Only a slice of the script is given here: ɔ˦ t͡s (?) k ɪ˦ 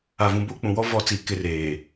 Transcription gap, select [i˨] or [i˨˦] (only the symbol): i˨˦